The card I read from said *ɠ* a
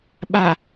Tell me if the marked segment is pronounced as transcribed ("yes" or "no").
no